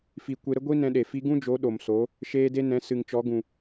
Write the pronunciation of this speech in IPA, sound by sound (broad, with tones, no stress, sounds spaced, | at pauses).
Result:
f i˧ kʷ e˧ ɾ ə˦ ɡʷ i˦ n ɛ̃˧ ɗ e˨ f i˧ ɡ ũ˦ d͡ʒ o˨˦ ɗ o˨ m s o˨˦ | ʃ eː˧ d e˧ n ɛ̃˨˦ s ɨ˨ ŋ t͡ʃ ɔ˨˦ ɡ ũ˨